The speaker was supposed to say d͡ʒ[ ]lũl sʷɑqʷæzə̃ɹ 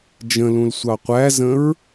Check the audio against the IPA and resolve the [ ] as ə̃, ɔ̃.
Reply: ə̃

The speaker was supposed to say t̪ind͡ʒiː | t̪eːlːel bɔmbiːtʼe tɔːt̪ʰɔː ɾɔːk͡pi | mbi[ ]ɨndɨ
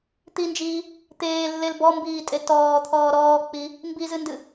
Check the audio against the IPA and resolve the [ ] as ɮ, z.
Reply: z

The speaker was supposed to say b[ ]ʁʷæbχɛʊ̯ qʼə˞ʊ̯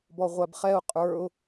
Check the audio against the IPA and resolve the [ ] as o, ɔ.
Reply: ɔ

